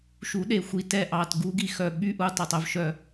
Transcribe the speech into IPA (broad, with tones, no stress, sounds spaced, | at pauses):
ʃ u˩˥ ɗ e˨˩ xʷ i˨˩ t ɛ˦˨ ʔ ɑ˨˩ t ɡ u˧˥ ɡ i˨˩ x œ˨˩ ɓ y˧˥ ʔ u˩˥ tˤ o˨˩ tˤ œ˩˥ v ʃ œ˦˨